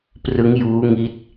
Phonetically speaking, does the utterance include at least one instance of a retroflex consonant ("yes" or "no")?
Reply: no